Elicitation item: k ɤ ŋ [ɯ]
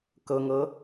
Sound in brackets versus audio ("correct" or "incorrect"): incorrect